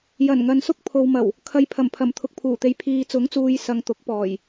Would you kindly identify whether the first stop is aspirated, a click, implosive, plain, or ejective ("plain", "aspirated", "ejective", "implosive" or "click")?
plain